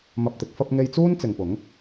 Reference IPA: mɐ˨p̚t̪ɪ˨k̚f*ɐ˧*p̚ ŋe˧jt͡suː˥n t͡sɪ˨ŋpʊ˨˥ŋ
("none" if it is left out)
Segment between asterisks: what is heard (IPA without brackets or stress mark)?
ɐ˧